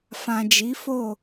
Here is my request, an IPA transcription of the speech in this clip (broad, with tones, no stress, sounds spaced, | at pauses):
f ã˨ d͡ʒ i˨˦ f o˦˨